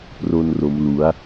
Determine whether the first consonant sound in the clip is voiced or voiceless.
voiceless